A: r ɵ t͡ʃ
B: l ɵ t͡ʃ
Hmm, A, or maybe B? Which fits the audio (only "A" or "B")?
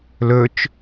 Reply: B